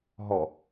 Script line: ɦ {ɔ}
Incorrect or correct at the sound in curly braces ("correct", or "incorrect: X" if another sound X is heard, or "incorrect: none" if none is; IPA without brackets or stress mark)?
correct